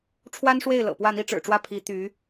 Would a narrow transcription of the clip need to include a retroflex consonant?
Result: yes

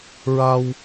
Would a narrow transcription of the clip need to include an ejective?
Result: no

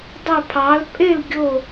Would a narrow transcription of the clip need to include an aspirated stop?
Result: yes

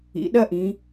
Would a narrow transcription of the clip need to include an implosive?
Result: yes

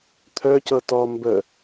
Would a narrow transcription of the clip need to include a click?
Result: no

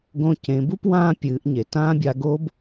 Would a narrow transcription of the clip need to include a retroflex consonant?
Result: no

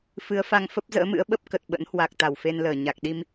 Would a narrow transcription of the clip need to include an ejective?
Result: no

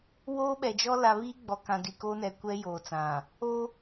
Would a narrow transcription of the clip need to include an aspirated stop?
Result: no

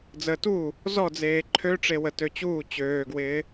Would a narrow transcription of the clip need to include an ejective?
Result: no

